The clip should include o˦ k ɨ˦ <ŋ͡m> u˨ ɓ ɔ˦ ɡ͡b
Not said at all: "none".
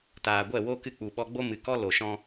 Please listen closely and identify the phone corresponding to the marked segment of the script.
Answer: k͡p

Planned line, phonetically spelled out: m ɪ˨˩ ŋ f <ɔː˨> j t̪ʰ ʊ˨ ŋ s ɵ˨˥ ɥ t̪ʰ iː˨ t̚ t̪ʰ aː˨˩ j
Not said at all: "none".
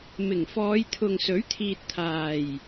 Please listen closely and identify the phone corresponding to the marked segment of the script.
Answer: ɔː˨˧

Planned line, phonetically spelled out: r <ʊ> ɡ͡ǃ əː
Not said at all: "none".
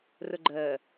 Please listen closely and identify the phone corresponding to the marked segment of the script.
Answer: ʊ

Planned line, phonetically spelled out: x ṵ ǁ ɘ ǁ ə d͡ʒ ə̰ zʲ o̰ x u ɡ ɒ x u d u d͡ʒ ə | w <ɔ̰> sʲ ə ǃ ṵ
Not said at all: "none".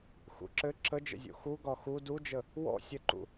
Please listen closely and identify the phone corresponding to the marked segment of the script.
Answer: ɔ̰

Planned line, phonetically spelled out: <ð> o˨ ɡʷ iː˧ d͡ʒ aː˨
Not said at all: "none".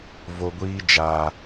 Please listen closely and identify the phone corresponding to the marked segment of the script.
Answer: v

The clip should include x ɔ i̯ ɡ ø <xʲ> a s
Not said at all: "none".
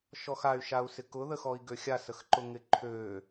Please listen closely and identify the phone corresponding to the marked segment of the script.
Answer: xʲ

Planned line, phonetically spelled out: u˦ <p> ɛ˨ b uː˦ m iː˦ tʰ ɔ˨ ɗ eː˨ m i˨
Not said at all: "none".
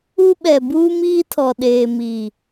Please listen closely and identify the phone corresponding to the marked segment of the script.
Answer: ɓ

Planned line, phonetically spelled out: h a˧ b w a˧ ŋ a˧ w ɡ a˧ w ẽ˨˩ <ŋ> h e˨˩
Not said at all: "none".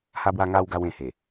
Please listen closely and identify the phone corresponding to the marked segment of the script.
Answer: none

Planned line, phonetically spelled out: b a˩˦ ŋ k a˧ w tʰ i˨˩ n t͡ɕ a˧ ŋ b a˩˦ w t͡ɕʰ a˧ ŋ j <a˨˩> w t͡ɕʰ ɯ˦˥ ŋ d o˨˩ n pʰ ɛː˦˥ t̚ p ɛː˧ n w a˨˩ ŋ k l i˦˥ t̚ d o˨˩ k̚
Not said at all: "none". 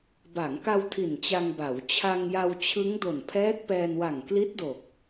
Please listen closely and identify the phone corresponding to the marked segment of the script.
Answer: a˧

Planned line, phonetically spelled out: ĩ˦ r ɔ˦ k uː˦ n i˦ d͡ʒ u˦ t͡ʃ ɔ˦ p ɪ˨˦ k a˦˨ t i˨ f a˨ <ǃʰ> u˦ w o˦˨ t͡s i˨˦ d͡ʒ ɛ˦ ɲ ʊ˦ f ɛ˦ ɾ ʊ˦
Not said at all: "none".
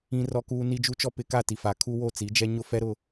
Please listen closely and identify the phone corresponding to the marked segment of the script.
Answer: kʰ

